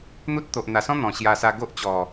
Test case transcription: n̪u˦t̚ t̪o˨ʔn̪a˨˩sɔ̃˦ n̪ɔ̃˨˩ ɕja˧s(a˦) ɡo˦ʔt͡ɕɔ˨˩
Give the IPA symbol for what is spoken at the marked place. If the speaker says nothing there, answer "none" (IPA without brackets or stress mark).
a˧